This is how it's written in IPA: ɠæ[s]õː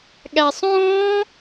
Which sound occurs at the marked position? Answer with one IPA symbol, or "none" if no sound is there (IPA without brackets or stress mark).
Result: sˤ